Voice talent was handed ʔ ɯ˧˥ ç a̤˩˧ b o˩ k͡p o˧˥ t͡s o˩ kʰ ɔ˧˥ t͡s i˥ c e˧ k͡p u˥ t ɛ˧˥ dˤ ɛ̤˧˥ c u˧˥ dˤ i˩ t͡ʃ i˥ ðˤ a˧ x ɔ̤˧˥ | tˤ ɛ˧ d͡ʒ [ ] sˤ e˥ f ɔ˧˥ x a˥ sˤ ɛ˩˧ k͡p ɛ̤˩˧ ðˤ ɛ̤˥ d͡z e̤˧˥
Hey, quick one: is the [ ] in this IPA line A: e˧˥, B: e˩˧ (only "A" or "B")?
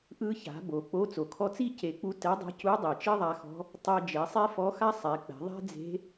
B